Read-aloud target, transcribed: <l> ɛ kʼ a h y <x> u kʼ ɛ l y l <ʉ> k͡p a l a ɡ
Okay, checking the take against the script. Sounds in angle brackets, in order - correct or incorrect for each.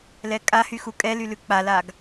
correct, correct, correct

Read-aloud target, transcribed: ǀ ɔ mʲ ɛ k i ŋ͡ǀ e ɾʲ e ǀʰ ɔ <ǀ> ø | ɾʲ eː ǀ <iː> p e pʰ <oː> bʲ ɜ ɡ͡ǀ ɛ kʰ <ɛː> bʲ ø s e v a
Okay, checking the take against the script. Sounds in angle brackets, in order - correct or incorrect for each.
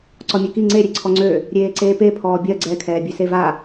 incorrect: ŋ͡ǀ, incorrect: eː, incorrect: ɔː, correct

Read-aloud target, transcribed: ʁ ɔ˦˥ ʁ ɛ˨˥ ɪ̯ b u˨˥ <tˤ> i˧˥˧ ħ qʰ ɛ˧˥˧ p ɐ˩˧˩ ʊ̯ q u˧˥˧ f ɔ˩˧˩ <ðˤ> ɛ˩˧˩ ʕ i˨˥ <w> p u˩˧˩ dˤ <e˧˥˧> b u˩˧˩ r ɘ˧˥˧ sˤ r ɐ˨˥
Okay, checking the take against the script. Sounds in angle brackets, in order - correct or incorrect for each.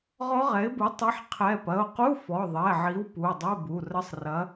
correct, correct, correct, incorrect: ɘ˧˥˧

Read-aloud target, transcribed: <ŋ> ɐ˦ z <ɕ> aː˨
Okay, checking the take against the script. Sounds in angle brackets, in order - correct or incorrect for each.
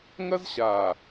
correct, correct

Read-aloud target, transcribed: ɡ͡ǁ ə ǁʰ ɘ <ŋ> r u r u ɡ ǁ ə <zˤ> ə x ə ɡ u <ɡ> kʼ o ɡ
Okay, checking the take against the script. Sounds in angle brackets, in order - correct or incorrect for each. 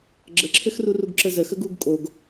incorrect: x, incorrect: z, correct

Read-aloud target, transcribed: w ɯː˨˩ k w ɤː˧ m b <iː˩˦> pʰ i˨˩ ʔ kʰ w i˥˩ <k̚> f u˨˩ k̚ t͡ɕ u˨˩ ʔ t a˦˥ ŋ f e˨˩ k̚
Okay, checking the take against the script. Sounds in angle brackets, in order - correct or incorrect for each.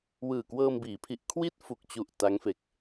correct, incorrect: t̚

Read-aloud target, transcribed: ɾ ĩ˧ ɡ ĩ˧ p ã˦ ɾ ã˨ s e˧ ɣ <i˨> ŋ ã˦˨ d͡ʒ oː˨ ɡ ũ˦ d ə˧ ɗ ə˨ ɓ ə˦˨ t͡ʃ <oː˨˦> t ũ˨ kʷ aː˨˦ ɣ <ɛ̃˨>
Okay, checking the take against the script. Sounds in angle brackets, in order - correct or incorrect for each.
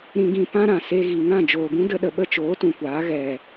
correct, correct, incorrect: ɛ˨

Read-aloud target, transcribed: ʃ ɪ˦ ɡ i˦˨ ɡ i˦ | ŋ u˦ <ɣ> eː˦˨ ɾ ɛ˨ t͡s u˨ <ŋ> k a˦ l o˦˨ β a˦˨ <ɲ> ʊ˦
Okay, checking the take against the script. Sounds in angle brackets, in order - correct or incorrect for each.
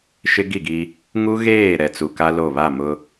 correct, incorrect: none, incorrect: m

